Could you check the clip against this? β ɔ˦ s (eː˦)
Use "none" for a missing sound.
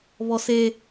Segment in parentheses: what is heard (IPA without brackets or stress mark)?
eː˦